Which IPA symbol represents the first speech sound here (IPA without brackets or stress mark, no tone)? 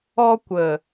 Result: ɔ